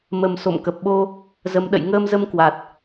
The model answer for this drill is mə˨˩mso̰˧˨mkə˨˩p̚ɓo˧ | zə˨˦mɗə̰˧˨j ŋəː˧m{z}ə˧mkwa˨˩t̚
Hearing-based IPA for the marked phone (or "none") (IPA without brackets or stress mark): z